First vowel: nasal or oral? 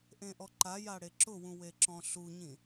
nasal